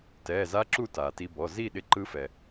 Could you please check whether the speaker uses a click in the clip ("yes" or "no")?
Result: yes